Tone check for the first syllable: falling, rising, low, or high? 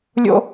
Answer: high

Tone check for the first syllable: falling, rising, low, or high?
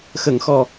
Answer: low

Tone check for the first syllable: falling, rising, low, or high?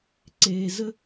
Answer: low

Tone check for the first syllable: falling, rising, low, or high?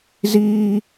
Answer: high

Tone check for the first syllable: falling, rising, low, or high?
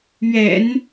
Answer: low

